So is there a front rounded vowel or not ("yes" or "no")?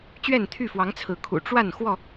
yes